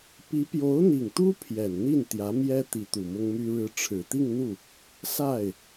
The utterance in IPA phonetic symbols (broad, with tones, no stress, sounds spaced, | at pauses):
p i˧˥ p j o˧˥ ʊ̯ n̪ i˨˩ ŋ t̪ u˥ pʰ j ɛ˨˩ n n̪ i˥˩ n t̪ j ä˧˥ m j ɛ˥ t̪ i˧˥ t̪ u˨˩ m ʊ˥ ŋ m y˥ ɻ ɻ̩˥ ʈ͡ʂʰ ɻ̩˨˩ t̪ i˥˧ ŋ n̪ u˥˩ | s a˥˩ ɪ̯